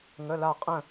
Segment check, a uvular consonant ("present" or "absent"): present